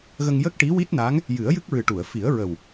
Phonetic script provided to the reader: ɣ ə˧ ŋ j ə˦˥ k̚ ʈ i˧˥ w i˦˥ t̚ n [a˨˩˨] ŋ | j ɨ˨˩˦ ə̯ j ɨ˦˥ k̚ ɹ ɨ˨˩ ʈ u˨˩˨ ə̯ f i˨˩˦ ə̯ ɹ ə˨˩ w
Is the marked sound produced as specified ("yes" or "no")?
no